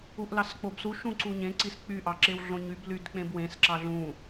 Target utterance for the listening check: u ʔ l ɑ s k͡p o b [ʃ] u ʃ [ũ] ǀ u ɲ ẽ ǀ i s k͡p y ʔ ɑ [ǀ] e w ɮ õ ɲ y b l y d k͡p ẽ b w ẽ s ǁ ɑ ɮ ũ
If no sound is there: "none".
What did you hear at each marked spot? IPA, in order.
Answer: s, ũ, ǁ

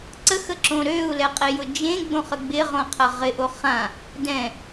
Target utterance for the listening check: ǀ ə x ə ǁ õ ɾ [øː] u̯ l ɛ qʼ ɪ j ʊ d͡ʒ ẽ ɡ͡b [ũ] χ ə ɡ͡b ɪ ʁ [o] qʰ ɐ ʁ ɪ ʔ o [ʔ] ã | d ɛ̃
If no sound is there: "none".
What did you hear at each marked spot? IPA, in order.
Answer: øː, õ, õ, χ

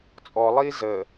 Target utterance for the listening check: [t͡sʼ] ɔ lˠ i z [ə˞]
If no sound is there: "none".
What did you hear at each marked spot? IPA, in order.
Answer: t͡sʼ, ə

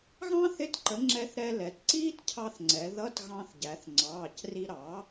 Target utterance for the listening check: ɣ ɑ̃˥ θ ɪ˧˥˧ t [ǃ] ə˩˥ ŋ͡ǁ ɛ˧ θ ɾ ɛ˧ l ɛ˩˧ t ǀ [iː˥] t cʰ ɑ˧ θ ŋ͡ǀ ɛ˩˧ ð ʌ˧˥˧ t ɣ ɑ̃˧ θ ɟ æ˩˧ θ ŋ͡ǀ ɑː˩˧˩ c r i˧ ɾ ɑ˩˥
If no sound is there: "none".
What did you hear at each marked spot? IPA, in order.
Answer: ǃ, iː˥

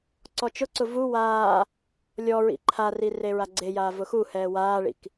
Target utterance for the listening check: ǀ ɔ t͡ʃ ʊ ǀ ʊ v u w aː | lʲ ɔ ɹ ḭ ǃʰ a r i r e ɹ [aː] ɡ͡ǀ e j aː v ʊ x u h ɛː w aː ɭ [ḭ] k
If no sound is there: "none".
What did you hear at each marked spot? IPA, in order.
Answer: a, ḭ

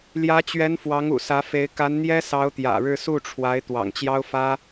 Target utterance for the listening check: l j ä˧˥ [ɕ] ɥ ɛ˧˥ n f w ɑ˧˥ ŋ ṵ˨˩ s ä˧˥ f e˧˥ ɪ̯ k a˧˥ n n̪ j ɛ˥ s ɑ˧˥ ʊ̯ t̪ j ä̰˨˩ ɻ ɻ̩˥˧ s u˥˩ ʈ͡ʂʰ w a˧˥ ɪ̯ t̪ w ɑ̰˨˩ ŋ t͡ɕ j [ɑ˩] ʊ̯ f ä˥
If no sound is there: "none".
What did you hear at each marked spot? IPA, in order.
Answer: t͡ɕ, ɑ˥

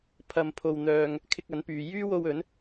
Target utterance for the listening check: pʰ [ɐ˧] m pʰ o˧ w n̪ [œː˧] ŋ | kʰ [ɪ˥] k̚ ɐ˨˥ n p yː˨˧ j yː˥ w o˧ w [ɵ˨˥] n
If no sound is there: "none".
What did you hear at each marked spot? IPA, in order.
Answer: ɐ˧, œː˧, ɪ˧, ɵ˨˥

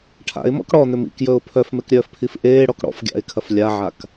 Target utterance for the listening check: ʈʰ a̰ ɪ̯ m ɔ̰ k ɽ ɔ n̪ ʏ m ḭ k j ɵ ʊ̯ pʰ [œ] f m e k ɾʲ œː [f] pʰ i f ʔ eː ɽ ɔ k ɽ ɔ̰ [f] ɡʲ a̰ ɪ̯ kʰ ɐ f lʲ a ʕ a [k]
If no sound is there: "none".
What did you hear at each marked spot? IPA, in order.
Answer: œ, f, f, k

